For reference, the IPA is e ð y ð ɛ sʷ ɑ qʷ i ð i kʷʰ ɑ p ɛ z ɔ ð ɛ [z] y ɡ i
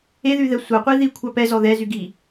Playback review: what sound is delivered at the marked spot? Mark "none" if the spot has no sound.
z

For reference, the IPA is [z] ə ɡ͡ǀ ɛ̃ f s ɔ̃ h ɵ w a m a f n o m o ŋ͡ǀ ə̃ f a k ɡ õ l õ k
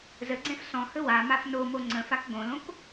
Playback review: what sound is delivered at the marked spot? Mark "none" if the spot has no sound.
z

